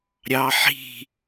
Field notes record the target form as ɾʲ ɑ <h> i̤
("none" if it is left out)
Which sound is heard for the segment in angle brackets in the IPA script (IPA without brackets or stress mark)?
ħ